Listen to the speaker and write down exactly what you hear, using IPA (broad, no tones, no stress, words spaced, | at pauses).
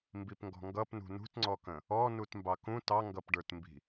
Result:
mbipŋɡɔ̤ŋɡʌp nṳnṳtŋ͡ǀɔkə̃ | ɔ nutmbɑkũ tɑŋɡʌpɖə˞tmbi̤